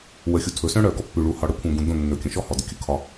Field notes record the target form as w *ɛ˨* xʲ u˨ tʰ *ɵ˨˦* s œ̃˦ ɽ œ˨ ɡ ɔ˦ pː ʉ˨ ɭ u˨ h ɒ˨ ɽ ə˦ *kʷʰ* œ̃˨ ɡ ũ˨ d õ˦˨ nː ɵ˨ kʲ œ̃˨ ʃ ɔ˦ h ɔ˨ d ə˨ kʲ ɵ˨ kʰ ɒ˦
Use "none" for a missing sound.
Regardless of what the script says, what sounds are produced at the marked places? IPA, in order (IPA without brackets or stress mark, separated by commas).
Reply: ə˨, ɵ˨˦, kʷʰ